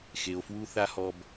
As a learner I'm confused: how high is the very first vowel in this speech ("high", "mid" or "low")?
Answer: mid